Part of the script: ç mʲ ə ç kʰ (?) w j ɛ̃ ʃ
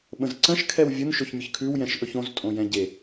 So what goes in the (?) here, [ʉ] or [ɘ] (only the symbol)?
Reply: ʉ